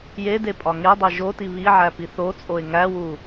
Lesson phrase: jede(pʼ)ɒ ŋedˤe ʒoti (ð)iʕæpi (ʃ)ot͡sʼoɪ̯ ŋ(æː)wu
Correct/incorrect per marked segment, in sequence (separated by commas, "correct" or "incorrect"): correct, incorrect, incorrect, incorrect